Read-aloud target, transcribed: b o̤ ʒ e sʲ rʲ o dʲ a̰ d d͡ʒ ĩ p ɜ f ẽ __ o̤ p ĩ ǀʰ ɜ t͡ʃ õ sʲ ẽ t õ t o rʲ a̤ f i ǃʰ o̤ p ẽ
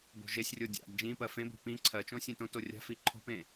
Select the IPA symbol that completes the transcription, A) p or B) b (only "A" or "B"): B